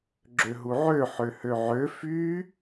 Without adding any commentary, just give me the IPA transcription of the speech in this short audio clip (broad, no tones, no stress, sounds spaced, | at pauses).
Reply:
ɡ͡ǁ ø ɦ u ʕ ø ħ ø h ø ʕ ø f y